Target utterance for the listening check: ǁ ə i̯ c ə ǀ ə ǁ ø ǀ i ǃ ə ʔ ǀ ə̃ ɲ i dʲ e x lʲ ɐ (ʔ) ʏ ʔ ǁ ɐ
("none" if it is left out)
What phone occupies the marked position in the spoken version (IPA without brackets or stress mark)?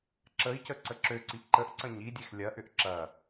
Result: ʔ